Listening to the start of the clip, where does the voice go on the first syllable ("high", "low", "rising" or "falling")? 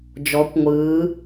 rising